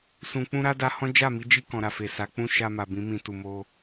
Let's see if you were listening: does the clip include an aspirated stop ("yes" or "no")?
no